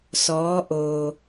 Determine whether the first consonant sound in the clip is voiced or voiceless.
voiceless